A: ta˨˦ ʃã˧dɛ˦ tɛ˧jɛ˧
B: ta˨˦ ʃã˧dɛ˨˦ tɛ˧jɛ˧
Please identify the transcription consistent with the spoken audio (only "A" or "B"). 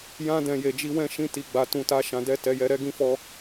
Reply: A